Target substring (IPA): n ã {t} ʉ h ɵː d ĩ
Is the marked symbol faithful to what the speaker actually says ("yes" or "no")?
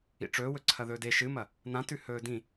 yes